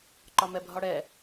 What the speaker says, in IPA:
ǃ ɒ m ɛ bʱ ɒ ɽ ɛ

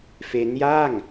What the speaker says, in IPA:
f e˦˥ n j a˥˩ ŋ

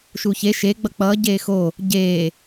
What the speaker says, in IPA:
ʃ u ç e ʃ e ɡ͡b ʌ k͡p ʌː ɟ eː x o | ɟ eː

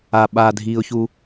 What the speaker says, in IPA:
a ɓ a dʱ iː ʊ̯ ç u

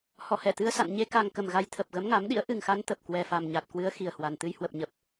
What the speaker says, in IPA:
h ɔ˧˩ h ɛ˧˩ t̪ ɨ˧ ə̯ s a̰˧˨ n ɲ e˧ k a˧ ŋ k ə˨˩ m ɣ a˧ j t̪ʰ ə˨˩ p̚ ɣ ə˨˦ m ŋ a˨˦ m ɗ ḭ˧˥ ə̯ ʔ ɨ˨˩ ŋ x a˨˦ n t̪ ə˨˩ p̚ k w ɛ˨˩ f a˨˩ m ɲ a˨˩ t̚ k w ɨ˨˦ ə̯ x i˨˩ ə̯ h w a˨˩ n t̪ ɨ˧ j h w ə˨˩ p̚ ɲ ə˨˩ p̚

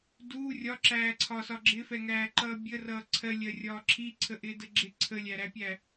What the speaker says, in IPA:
d u rʲ ɒ ǁ æː ǀʰ ɒ s ɒ ɡ͡ǁ ɪ f ɛ ŋ æː ǃ ʌː bʲ ə r ʌː ǀʰ ɜ lʲ ɜ rʲ ɒː ǁʰ i ǀʰ ə ʔ ɪː d ə ɡ͡ǁ ɪ ǀʰ ə lʲ æ ɾ æ pʲ æ

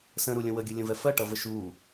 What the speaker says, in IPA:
s ə̃ ɾ u lʲ ə̃ w ə ɡʲ ə lʲ ə̃ v ɛ f ɜ ʈ ʌ v ə ʃ u

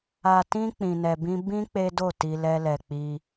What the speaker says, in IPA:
a˧ t ĩ˦ k͡p ĩ˧ n ɛ˧ b ĩ˦ b ĩ˦ k͡p e˦ d o˦˨ t i˧ l ɛ˧ l ɛ˨ k͡p i˧

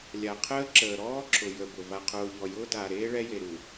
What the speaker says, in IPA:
lʲ a˨ qʰ əː˦ ǁ əː˨ ɾ ɔː˦ ǁʰ ʊ˨ j ə˨ b ʊ˨ v a˨ qʰ ʊː˨ ʎ ɔ˨ j ʊː˦ d aː˨ ɾ eː˦ ɭ ɛ˦ j e˨ ɾ u˨

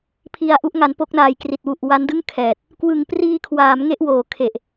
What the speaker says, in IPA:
pʰ i˧ a̯ ʔ u˦˥ ʔ ŋ a˩˦ n p o˦˥ k̚ n aː˨˩ j k r i˨˩ t̚ w u˨˩ ʔ w a˦˥ n d ɯ˥˩ ŋ kʰ ɛː˨˩ t̚ | k w ɯ˨˩ ŋ p r iː˧ kʰ w aː˩˦ m ŋ e˥˩ ʔ w oː˨˩ kʰ e˨˩ ʔ

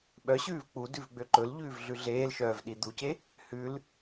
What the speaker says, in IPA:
ɓ œ ɕ ʉː v k͡p u d ʉ v ɡ͡b ø ǃ ɵ l ʎ ʉː v ɮ ʉ ɮ eː l ʃ œː v ɗ i d̪ u c e | h ʉ l

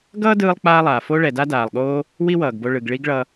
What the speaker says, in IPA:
ɡ ʌː˥ d ɯː˧ lˠ k͡p aː˧ lˠ aː˩ f o˥ ɭ ɛ˩ d a˥ d aː˩ lˠ ɠ oː˥ | w i˥ w ʌː˩ ɡ b o˧ ɭ ɯ˩ ɡ ɭ i˥ ɡ ɭ ʌ˧

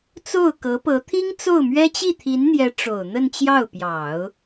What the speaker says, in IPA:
t͡s o˥˩ ʊ̯ k ɤ˧˥ p ɤ˧˥ t̪ʰ i˥ ŋ t͡s o˥˩ ʊ̯ m ɥ ɛ˥ t͡ɕ i˥˩ t̪ʰ i˧˥ n n̪ j ɛ˧˥ ʈ͡ʂ o˨˩ ʊ̯ n̪ ə˥˧ n t͡ɕ j ɑ˥˩ ʊ̯ p j ɑ˨˩˦ ʊ̯

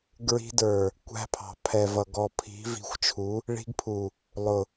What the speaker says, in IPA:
ɡ ɹ i̤˦ d ə˞˨ | kʷ æ̤˦ pʰ ɑ̤˨ pʰ ɛ˨ v ʌ˨ ɡ ɔ˨ pʰ i̤˨˦ v i̤˨˦ xʷ t͡ʃʰ u˨˦ | ɭ i̤˦ ɡ pʰ u˨ | lˠ ʊ˨

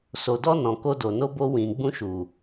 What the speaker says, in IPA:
s o˨ d ɔ˧ n ɔ̃˨ k o˧ d o˨ n o˧ b o˧ w ĩ˨ ɡ͡b ũ˧ ʃ u˨

